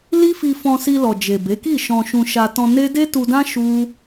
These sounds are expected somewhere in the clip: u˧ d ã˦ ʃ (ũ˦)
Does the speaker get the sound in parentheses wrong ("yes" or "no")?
yes